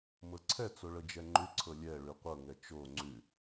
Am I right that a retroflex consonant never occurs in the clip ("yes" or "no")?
no